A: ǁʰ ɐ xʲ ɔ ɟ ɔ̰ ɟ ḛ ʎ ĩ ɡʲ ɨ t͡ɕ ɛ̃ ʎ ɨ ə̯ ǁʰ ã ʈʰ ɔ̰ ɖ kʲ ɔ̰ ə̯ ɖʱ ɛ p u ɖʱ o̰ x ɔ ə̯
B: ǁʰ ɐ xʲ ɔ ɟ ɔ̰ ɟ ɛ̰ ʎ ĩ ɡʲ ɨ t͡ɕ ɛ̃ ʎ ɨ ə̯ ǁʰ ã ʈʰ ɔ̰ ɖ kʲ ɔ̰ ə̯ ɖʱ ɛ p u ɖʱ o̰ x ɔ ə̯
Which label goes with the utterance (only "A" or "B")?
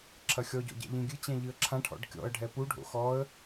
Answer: B